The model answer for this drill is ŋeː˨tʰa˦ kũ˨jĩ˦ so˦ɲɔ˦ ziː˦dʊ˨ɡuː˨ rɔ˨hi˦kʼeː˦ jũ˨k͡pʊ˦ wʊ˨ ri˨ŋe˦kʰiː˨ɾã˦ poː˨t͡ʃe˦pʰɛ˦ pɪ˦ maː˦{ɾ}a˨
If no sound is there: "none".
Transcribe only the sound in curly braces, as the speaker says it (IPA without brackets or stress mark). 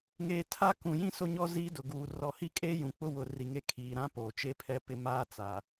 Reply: t͡s